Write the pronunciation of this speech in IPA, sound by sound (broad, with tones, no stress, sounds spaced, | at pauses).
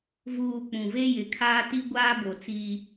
v uː˨ k͡p ũ˨ v e˦ j ɪ˨ kʰ aː˦ t i˦ ɡʷ aː˦ b o˨ t͡s iː˦